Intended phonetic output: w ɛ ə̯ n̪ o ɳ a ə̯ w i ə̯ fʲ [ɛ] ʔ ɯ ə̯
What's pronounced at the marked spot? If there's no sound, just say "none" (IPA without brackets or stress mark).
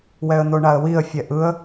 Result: ɛ